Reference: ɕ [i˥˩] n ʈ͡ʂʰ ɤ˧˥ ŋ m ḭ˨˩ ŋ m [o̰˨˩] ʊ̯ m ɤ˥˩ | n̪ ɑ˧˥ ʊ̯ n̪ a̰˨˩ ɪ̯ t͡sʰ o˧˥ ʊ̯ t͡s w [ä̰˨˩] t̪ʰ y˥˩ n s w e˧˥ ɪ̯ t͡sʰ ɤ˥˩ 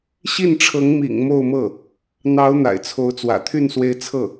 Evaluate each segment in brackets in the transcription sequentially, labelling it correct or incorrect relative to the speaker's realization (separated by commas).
correct, incorrect, correct